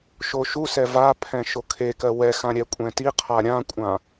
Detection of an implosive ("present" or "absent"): absent